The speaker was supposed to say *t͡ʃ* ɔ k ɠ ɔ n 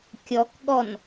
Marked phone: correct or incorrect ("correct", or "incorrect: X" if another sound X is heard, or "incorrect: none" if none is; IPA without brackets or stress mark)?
incorrect: kʲ